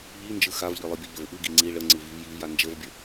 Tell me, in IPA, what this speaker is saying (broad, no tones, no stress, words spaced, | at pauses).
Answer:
ʎind͡ʒɯ xavʎɯlˠɯbʲə ʎəvʔɯɡi ŋ͡ǀi ɭə ŋ͡ǀɯvivjiv jand͡ʒəvbʲə